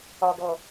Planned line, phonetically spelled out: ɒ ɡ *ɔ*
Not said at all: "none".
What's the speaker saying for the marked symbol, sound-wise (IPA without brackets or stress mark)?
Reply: ɔ